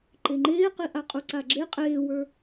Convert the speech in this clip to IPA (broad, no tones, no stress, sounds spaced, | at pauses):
ǃ e ŋ͡ǃ eː q i ʔ a qʼ u ǀ a ɡ͡ǁ e qʼ eː w ə˞